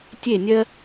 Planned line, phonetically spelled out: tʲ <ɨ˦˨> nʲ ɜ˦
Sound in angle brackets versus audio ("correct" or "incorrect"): incorrect